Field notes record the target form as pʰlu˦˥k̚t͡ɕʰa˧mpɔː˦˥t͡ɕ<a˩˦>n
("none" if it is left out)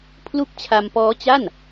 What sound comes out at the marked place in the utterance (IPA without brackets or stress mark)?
a˥˩